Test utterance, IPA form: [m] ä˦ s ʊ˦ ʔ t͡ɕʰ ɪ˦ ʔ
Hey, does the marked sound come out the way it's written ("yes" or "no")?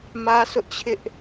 yes